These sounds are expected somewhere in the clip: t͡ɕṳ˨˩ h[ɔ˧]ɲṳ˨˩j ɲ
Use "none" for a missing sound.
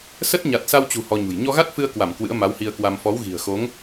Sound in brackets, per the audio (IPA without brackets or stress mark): ɔ˧